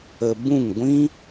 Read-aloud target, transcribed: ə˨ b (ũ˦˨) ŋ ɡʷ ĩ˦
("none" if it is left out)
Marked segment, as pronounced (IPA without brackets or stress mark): ũ˦˨